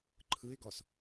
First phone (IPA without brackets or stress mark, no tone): ǃʰ